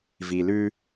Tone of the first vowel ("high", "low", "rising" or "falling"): low